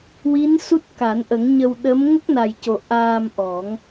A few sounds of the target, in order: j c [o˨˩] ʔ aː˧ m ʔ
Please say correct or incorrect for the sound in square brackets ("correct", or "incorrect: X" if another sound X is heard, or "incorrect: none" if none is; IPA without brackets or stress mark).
correct